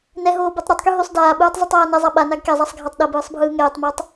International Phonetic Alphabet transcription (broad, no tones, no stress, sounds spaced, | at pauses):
n ɛ ɦ oː b ɛ tˤ ɾ ɛ tˤ k y ɦ y sˤ d aː ɓ ɯː tˤ zˤ y tˤ aː n ɛ zˤ a ɓ a n a ɡ k ɛ zˤ a sˤ ɡʱ a tˤ ɗ ɐ b ɯː sˤ bʱ ɯː ŋ ɛː tˤ m ɛ tˤ